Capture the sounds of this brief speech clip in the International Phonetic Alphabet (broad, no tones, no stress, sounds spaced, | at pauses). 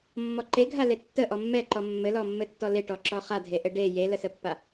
mː ɔ ǃ e ɡʱ a l e tː ə ʔ ɔ mː ɛ ǃ ɔ mː ɘ l ɔ mː ɘ tː ɔ l e ʈ ɔ ǁ ɔ χ a dʱ e ʔ ɘ ɖ e j e l ə s ə pː a